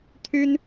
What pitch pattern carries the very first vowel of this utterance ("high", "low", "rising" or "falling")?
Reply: high